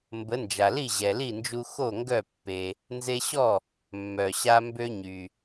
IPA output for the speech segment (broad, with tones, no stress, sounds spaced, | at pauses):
m b ə˩˥ n d͡ʒ a˩ l i˥˩ ʑ ɛ˩ l i˥˩ n d͡ʒ u˧ x o˥˩ ŋ ɡ œ˥˩ pː e˩ | n z e˧ ɕ ɔ˥˩ | mː œ˩ ɕ a˧ m b ø˥ ɲ y˩